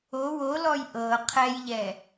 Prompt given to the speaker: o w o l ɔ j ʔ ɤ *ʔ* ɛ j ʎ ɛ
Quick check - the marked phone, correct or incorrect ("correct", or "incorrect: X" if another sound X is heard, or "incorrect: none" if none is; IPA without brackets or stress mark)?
incorrect: qʰ